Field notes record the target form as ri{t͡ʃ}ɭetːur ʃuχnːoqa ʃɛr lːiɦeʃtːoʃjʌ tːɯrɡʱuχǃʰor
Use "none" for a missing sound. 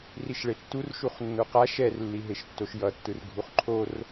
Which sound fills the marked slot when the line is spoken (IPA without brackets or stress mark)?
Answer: ʃ